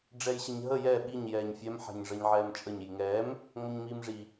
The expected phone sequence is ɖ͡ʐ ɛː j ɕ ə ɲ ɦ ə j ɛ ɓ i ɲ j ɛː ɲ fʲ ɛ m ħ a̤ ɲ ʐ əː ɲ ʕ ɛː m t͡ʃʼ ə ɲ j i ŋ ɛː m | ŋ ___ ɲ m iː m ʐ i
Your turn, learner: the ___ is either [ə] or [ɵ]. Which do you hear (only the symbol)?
ə